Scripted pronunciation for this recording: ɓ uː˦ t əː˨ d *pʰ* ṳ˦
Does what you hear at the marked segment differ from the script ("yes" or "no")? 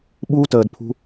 no